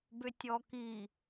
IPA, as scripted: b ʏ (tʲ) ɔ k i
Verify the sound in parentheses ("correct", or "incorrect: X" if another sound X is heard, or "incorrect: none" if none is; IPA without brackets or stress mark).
correct